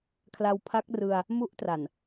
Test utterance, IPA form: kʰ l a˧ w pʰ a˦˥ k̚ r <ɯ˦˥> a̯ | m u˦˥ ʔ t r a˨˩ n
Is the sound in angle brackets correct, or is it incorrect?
incorrect